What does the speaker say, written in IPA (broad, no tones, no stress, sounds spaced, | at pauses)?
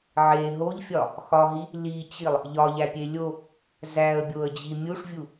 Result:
ʕ e ɦ o ʎ fʲ ɒ | x ɒ ɦ i | l i t͡ɕ i lˠ | ʎ ɒ ʎ æ pʲ e lʲ o | z æ ə̯ bʲ o ə̯ d͡ʑ i mʲ u ʂ vʲ u